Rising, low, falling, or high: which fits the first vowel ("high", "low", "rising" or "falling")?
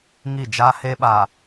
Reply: falling